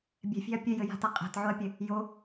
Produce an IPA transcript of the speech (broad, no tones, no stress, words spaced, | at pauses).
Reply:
bʲɛ̤fʲɛ̤ɐ̯ pʲɘjɘja̤ta qʼæ̤tʕoɐ̯pʲɘ | jo